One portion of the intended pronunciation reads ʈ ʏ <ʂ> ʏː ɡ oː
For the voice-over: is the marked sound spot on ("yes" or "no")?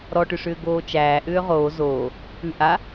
yes